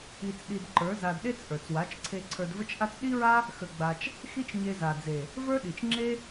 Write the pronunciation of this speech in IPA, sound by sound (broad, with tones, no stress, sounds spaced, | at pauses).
i˧ t͡s ɗ i˧ d ǃ ə˞˨˦ z a˧ d ɗ e˦ t͡s ʔ ə˞˨ t͡s w a˨˦ t͡ʃ ǀʰ e˧ ǀʰ ə˞˧ d v ə˦ t͡ʃ ʔ a˦ t͡s ɗ i˦ ɹ a˦ | x ə˧ ɡ͡b a˧ t͡ʃ | x i˦ t͡ʃ ɲ e˧ z a˨ d͡z e˨ | v ə˞˦ ɗ i˨ t͡ʃ ŋ͡ǁ e˦